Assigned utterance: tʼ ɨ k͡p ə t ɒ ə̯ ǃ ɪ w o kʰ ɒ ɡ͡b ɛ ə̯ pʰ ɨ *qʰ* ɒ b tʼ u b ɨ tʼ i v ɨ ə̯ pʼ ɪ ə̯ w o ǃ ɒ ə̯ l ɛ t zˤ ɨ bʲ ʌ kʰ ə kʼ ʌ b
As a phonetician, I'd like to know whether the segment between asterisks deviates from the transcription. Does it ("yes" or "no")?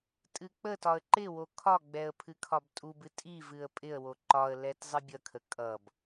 yes